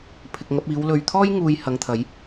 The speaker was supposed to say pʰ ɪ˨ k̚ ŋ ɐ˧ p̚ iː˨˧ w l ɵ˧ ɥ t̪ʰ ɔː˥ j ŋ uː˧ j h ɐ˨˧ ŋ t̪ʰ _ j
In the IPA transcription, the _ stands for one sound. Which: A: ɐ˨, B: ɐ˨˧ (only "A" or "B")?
B